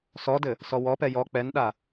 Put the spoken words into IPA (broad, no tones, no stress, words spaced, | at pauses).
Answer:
sɔdɘ | sɔwɔpɛ jɔ k͡pɛnɗa